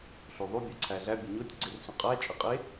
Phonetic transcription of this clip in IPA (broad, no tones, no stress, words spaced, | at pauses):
ɬoðˤo bʲæǀʰæɮæ bʲəɲotʲ ɡ͡ǀersũqʼæ t͡ʃʼəqʼe